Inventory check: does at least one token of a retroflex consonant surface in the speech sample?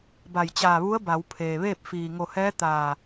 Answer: no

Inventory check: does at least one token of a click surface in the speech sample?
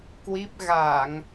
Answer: no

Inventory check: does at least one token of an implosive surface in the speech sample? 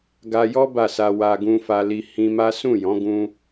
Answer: no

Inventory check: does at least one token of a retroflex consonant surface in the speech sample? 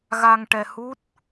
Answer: yes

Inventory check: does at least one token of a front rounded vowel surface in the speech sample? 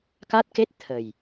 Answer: no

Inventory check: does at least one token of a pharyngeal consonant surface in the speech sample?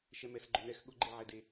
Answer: yes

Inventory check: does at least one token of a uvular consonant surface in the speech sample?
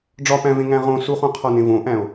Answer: yes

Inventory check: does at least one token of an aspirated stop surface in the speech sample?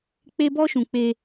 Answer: no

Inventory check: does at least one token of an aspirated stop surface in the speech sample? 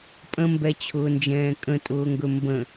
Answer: yes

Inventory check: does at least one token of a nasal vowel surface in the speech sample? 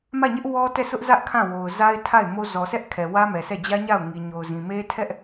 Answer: yes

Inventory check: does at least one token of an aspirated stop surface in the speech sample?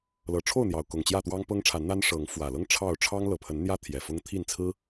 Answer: yes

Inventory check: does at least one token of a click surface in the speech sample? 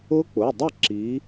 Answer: yes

